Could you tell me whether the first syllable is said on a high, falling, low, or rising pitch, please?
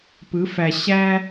rising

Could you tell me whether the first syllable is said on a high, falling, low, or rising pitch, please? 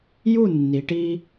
falling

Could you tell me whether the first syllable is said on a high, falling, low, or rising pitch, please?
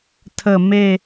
low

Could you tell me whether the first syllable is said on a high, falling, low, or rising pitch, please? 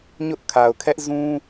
high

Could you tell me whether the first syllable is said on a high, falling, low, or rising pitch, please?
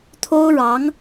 high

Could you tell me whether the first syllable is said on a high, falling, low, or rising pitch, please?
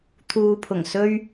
low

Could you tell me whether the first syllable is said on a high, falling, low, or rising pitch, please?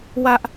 high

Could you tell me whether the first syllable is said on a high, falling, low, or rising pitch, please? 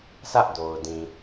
high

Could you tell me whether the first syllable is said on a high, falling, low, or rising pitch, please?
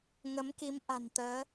rising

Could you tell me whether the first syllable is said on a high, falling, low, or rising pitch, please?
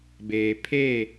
low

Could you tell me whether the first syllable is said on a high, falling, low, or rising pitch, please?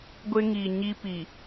high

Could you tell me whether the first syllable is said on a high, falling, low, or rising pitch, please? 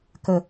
low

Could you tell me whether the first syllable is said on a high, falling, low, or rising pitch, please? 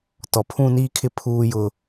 low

